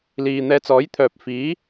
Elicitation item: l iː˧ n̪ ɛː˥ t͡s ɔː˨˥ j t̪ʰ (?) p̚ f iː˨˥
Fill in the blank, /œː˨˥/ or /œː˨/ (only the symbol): œː˨